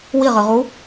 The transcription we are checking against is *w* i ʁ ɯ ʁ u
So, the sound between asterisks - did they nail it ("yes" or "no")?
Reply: yes